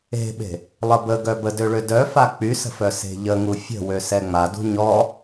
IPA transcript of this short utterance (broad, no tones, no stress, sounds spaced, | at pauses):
e̤ ɓ e̤ | lˠ ə b ə ɡ œ b ə d ø ɭ ø d œ f a k͡p y s ə̤ f œ s e̤ ʎ ə ŋ u fʲ ə̤ w ø s ɛ ŋ͡m a d ṳ ɲ ɔ